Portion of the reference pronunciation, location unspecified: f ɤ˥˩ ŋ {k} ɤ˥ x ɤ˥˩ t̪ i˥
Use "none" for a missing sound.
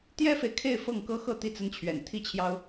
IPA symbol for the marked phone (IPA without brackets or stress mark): k